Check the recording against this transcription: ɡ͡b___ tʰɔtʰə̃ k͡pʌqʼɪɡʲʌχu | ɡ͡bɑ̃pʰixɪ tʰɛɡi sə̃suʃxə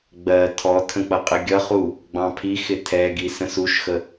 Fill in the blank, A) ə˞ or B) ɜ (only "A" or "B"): B